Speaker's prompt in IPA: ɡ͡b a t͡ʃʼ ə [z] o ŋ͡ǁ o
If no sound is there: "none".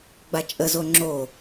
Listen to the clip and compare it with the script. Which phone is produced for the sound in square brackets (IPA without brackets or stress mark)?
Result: z